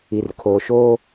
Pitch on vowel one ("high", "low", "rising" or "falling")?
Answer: low